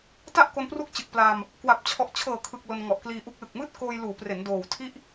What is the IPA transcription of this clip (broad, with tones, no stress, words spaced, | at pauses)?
ta˥˩ʔko˧npru˦˥k̚t͡ɕɯ˨˩k̚ pla˧m | kwa˨˩p̚t͡ɕʰɔ˨˩ʔt͡ɕʰɤː˨˩kʰɯ˨˩k̚ lo˧nŋɔ˨˩ʔkliː˧ʔu˦˥k̚ lɯ˨˩k̚mɯː˥˩t̚koː˧j luː˩˦pre˩˦n doː˨˩w tʰi˥˩ʔ